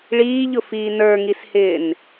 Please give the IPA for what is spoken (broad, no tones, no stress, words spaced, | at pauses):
ɭiːʎʊfiː nə˞ŋishɪːn